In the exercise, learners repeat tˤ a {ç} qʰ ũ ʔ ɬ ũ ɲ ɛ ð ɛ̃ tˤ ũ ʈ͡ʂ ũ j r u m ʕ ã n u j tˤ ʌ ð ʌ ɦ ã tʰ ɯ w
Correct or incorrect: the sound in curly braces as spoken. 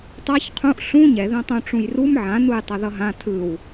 correct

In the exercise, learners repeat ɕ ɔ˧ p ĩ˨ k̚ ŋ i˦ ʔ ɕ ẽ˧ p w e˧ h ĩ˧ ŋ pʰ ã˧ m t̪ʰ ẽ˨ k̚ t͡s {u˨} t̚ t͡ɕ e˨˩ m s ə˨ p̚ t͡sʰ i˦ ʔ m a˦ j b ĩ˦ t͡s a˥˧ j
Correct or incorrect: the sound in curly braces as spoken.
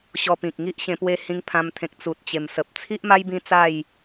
correct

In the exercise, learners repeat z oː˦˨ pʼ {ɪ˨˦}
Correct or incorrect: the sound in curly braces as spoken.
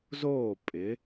correct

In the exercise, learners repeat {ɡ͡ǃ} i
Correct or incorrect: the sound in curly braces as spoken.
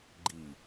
correct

